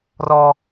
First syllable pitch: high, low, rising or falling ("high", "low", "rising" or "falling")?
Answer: high